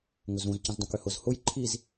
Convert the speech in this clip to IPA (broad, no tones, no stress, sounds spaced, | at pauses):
ŋ ʊ z ũ z c ə̃ z dˤ õ k ʏ h ʊ z h ʊ j ǃʰ i z